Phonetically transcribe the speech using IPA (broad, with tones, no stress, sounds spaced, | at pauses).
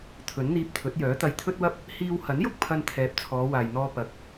t̪ʰ ɵ˨˥ n n̪ iː˧ p̚ t̪ʰ ɵ˨˥ t̚ j œː˨˥ t̪ ɐ˧ j t̪ʰ ɵ˥ t̚ w ɐ˥ p̚ | h iː˥ w h ɐ˨˥ n j ʊ˥ k̚ pʰ ɐ˧ n t̪ʰ ɛː˨ p̚ t͡sʰ ɔː˨˧ w aː˨ j n̪ ɔː˧ p ɐ˨ k̚